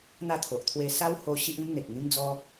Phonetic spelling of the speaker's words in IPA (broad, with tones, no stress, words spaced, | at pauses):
n̪a˥˧t̪ʰo˨ʔ t̪ʰwe˧sa˦who˧ ɕi˦ʔĩ˦mn̪e˨k̚ ŋĩ˦md͡zɔ˦